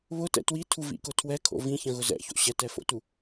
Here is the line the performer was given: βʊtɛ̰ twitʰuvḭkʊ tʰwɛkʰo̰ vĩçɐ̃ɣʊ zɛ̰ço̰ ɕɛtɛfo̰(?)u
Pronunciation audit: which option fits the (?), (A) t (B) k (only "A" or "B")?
A